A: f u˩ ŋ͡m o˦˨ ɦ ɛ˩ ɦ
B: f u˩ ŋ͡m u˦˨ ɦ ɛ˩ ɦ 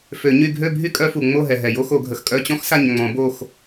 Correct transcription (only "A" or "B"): A